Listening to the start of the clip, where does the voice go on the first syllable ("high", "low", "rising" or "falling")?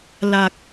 low